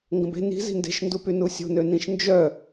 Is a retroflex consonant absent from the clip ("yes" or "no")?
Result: yes